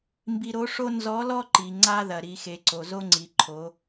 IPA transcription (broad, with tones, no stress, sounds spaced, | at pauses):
m b i˧ ɾ o˧˥ ʂ o˥ n z ɔ˧˥ l ɔ˥ ǃ i˩ ŋ͡ǀ a˥ ð ɐ˩ ɾ i˩˧ x e˩˧ ǀ o˩ z o˥ ŋ͡ǀ i˩˧ ǃʰ o˩˧